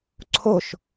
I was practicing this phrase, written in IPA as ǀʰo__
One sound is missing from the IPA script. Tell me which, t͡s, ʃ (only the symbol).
ʃ